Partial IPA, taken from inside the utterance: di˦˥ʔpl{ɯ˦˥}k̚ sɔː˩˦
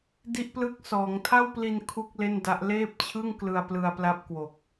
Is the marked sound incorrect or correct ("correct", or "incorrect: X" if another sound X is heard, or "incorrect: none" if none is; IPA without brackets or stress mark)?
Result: correct